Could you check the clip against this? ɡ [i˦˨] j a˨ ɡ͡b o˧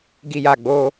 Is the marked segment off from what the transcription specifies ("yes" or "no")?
yes